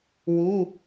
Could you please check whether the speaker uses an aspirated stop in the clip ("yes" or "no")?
no